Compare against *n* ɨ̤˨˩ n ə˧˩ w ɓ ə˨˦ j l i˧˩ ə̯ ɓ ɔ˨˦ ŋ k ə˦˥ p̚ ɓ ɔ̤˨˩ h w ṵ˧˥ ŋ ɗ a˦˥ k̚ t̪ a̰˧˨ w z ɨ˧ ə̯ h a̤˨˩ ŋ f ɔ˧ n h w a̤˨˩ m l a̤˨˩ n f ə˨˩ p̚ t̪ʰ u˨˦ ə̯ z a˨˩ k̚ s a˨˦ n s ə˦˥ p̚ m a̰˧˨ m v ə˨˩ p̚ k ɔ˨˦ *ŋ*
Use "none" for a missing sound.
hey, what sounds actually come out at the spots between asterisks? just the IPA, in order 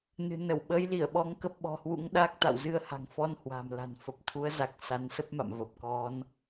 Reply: n, n

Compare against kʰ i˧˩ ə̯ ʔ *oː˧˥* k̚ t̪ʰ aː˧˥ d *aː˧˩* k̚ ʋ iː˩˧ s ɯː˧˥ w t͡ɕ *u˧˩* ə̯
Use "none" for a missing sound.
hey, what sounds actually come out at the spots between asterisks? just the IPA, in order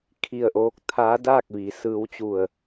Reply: oː˧˥, aː˥˨, u˧˩

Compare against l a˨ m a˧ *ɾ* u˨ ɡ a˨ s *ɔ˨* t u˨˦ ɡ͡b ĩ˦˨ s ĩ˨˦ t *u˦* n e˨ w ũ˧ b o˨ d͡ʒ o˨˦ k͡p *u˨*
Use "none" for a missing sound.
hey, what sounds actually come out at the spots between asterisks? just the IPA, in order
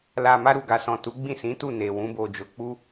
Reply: ɾ, ɔ̃˨, u˦˨, u˦

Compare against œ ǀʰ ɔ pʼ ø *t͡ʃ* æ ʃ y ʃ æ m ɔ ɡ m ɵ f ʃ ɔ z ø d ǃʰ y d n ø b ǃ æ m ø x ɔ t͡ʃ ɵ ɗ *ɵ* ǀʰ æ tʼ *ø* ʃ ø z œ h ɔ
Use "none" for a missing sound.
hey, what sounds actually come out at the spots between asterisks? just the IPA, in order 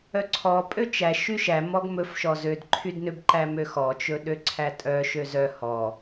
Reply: t͡ʃ, ø, œ

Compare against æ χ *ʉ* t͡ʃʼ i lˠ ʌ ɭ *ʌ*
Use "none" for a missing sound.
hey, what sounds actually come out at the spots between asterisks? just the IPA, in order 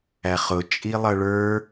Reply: ʊ, ə˞

